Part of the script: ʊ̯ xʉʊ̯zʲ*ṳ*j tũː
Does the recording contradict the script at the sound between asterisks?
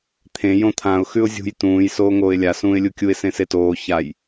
no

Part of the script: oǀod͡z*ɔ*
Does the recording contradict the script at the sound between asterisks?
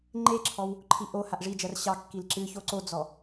no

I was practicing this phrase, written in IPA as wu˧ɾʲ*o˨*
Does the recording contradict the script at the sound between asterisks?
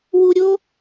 yes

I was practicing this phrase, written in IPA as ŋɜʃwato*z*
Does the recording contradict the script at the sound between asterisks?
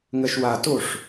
yes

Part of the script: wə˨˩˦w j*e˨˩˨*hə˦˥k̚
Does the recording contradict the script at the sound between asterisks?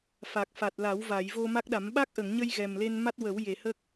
no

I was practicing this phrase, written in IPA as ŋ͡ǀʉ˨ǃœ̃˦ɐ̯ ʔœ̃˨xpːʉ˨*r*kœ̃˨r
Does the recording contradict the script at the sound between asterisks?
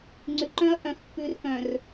no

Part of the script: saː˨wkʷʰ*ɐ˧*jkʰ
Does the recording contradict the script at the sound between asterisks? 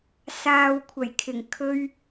yes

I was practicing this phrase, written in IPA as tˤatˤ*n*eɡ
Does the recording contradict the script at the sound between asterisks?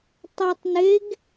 no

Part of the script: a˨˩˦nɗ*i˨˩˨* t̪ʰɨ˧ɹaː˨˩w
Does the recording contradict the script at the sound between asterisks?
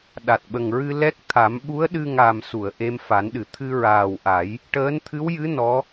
yes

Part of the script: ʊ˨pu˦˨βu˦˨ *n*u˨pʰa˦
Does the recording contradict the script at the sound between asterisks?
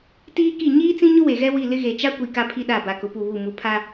yes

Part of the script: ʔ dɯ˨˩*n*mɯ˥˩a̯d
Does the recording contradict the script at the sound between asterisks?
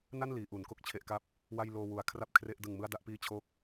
yes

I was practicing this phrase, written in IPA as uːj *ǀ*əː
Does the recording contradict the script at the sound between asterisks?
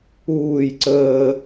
no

